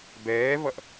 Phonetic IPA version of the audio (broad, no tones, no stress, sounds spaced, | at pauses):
b ɛː v ʌ ʔ